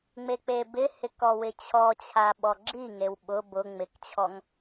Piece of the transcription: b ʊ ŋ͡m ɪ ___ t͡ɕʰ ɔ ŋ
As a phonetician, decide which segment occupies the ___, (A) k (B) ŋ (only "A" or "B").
A